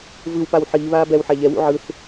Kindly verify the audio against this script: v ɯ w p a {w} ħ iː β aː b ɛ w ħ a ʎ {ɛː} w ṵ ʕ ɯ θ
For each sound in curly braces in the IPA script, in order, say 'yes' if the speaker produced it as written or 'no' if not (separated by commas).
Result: yes, no